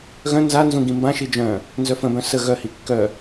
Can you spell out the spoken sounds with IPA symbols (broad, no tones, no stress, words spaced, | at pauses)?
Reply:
ɣœ̃ nzanzũ ɡĩmbãʃi d͡ʒœ̃ | nzœfə̃bœ̃ sə ɣœhi kːœ